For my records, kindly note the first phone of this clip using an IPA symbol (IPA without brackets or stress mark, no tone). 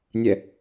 nʲ